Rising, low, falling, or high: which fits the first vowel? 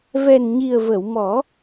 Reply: low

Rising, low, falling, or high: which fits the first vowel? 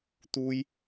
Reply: high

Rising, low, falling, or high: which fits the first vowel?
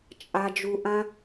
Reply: high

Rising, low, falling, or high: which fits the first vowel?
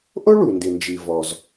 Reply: high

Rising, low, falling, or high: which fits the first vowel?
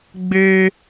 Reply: high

